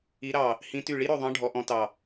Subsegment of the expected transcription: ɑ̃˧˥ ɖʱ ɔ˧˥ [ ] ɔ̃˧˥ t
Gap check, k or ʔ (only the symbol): ʔ